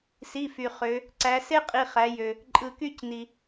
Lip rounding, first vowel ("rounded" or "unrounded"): unrounded